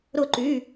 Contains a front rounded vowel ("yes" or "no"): yes